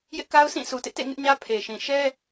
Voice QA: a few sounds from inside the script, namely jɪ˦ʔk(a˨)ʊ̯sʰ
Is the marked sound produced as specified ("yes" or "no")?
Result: no